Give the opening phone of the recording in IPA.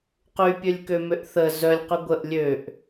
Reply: q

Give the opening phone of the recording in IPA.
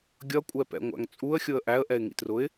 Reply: ɡʲ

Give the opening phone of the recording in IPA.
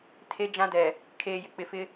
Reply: tʰ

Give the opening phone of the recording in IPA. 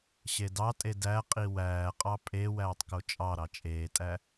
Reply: ɕ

